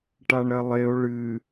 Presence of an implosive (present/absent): absent